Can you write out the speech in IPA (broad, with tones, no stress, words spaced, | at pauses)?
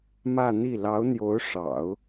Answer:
mä˥˧n̪i˥˩ lɑ˧˥ʊ̯n̪jo˧˥ʊ̯ʂɑ̰˨˩˦ʊ̯